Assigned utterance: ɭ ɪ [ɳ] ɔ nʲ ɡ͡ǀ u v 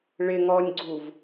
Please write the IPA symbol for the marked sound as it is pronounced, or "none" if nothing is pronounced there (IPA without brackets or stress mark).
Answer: ŋ